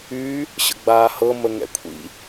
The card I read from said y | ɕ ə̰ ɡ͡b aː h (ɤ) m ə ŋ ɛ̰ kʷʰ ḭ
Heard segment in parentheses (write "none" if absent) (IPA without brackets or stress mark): ɤ